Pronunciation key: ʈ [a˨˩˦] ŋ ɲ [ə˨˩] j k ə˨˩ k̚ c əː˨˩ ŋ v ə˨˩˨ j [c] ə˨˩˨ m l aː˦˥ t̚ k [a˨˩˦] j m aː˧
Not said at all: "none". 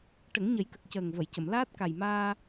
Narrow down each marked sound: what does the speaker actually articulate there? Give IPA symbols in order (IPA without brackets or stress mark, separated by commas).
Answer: ə˨˩˦, ə˨˩˦, c, a˨˩